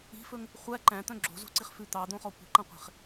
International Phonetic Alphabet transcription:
i̤ f ɵ ŋ | χʷ æ ǃ æ̃ t̪ œ̃ ɡ͡ǁ o̤ z o̤ ǀ i χ f ʉ t̪ ɑ d̪ õ χ ɔ kʷ i̤ ǃ ɑ̃ qʷ e̤ χ

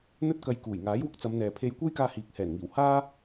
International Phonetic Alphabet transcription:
n̪ ɵ˥ t̚ k ɐ˧ j k uː˨˩ j ŋ aː˨˥ j w ʊ˧ k̚ t͡s ɐ˨˧ m n̪ ɛː˨ pʰ e˧ j kʷ e˥ j k aː˧ h iː˨ k̚ h ɛː˨˩ n ŋ iː˨˩ w h aː˥

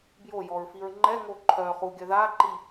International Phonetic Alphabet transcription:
b j o j ɔ ɹ f i ɹ ŋ͡ǃ ɛ ŋ o ǃʰ œ χ u ɡʲ œ ð a ǃ i

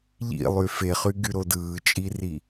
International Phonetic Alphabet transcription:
ʎ ḭ lˠ y f e χ y ɡ y ɾ o d ɯː t͡ʃʼ i r i

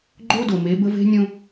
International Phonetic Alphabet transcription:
ɡ͡ǃ o˦ d o˨ m e˨˦ b ə˦ v e̤˦ nʲ õ˦

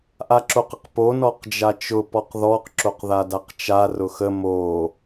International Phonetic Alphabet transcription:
ʔ a ǁ o q ə q p o n ɔ q d͡ʒ a t͡ʃ ʊ p ɔ q ð ɔ q ǁ o q ð a d a q t͡ʃ a r ʊ x ə m o

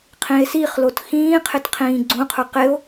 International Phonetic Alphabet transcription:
qʰ ĩ e̯ s i χ l o t x ĩː qʰ ɪ t qʰ ĩː ɡ͡ǀ ũ qʰ ʊ q ɪ o̯

